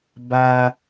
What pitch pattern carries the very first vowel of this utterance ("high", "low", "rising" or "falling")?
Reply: high